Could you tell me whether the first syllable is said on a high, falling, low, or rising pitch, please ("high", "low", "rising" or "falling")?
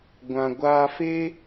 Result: low